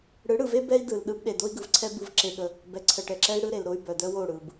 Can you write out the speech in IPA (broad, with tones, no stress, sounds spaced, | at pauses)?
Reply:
ɽ ɯ˨˦ ɽ ɯ˨ v e˦ b ɛ˦ i̯ d ɯ˨ l ɗ ɯ˦ b ɗ e˨ d o˦ i̯ ɡ ɯ˨ v ǀʰ ɛ˦ b ɯ˦ v ǁ e˦ ɠ ə˦ | b ɛ˨ ǀʰ ə˨ ʈ ɛ˨ ǁ ɛ˦ i̯ ɽ ɯ˦ ɾ e˨ l ɾ o˦ y̯ b œ˨ d œ˦ w o˦˨ ɽ ɯ˨ b